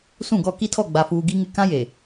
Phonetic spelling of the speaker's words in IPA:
s ũ˦˨ ɡ ɔ˦˨ k i˦ tʰ ɔ˦˨ ɡ͡b a˨ f uː˨ ɡ i˦ ŋ ɪ˦˨ k ã˦ j e˨

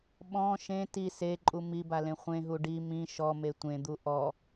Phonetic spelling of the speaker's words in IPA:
ɓ ɔ̃ ʃ ẽ t i s e ǃʼ u m i b a l ẽ χʷ ẽ ɦ u ɖ i m ĩ ʃ ɔ m e tʷ ẽ d̪ u ʔ ɔ

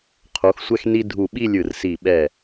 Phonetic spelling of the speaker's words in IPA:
qʰ o˩˧ x sʷ ɛ˧ x n i˧ dʱ u˧˩ ɓ i˥˧ lʲ ɯ˧˩ r s i˧˩ ɓ ɛ˧˩

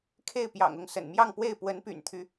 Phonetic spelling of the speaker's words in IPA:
kʰ e˥˩ ɪ̯ p j ɑ̰˨˩ ŋ ʊ˥˩ ŋ s ə̰˨˩ n m j ɑ˥˧ ŋ p w e˥˩ ɪ̯ p w ə˧˥ n p y̰˨˩ n t̪ʰ y˦

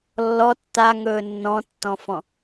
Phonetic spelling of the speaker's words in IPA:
lː ɔ tː a ŋ ɵː nː ɔ̃ tː ɔ̃ f ɔ̃

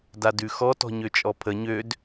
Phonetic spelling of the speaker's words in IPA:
d a d ʉ x ɔ t ɔ̤ ɲ ø t͡ʃʼ ɔ pʰ ə ɲ ø d

